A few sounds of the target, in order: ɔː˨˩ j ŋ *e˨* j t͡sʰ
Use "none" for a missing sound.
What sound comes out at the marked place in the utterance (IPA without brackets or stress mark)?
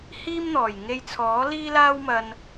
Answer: e˧